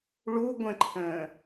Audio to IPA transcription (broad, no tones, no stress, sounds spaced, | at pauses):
ɭ u ɡʷ ə̃ ǃʰ ə̃ː